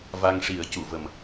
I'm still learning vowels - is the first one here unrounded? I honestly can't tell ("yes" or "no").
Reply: yes